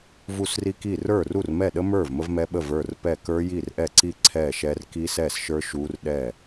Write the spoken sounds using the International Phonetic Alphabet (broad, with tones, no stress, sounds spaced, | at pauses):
v u˥˩ s r i˦˥ k i˥˩ r ə˞˥˩ r u˥˩ r m ɛ˥˩ ɗ ə˦˥ m ə˞˥˩ v m ə˦˥ v m ɛ˦˥ ɓ ə˥˩ v ə˞˥˩ r p ɛ˥˩ k ə˞˦˥ j i˥˩ r ʔ ɛ˥˩ ǀ i˥˩ ǀʰ ɛ˥˩ ʃ ɛ˦˥ r k i˦˥ s ɛ˥˩ s ʃ ə˞˦˥ ʃ u˦˥ r ɗ ɛ˥˩